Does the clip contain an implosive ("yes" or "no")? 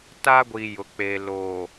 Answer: no